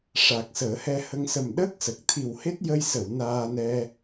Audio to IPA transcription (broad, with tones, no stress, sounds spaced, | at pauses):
ʂ a˨˩ k̚ s əː˨˩˦ h ɛ˧ h ə˧ ŋ s ə˨˩ m ɗ əː˦˥ k̚ s ə˨˩ k̚ t̪ʰ i˨˩ w h e˦˥ t̚ j ə˧ j s ə˨˩˨ w n aː˧ n ɛ˧